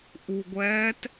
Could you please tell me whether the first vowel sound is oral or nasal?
oral